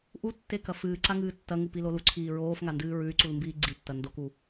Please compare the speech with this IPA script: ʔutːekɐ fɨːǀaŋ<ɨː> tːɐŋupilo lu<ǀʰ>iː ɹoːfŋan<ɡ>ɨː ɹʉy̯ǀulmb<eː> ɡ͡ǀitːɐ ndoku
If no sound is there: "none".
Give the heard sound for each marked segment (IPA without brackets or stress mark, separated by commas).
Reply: ɨː, ǀʰ, d, iː